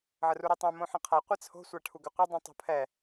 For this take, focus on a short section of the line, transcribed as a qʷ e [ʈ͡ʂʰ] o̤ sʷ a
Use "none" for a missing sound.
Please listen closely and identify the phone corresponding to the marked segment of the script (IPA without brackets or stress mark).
t͡sʰ